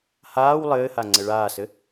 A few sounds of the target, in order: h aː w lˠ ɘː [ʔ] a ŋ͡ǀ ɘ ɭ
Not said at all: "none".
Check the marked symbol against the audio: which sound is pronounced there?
h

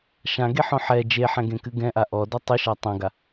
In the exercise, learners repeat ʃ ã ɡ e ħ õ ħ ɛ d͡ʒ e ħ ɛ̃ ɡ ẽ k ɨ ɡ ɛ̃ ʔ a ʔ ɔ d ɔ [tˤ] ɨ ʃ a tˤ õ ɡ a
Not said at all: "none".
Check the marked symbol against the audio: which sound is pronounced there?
tˤ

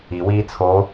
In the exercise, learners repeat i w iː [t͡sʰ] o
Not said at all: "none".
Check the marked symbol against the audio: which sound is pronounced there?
t͡sʰ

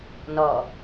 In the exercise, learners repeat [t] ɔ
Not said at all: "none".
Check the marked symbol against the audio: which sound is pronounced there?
n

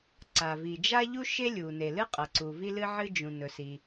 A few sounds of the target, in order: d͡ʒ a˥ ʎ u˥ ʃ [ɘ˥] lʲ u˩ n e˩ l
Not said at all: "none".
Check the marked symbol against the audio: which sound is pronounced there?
e˥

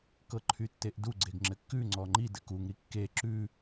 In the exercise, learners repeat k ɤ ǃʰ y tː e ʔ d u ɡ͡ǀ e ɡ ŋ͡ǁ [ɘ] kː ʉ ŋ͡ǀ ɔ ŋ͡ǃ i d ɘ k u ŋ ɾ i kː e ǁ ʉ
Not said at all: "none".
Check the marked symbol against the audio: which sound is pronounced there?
ɘ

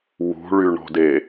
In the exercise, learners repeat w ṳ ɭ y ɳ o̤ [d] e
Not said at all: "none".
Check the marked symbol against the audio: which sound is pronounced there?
d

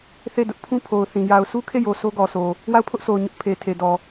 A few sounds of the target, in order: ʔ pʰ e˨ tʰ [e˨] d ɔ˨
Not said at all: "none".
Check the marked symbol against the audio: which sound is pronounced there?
e˨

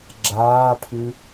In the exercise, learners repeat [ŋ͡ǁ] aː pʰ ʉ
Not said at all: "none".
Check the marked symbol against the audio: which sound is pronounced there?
ɡ͡ǁ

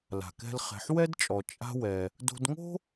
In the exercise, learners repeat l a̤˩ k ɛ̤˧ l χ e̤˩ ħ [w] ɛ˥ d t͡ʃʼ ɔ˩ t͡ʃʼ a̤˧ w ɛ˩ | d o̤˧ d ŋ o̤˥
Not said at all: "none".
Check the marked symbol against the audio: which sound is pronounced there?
w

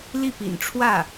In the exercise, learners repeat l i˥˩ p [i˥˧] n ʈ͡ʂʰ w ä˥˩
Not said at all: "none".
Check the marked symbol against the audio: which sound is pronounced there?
ḭ˨˩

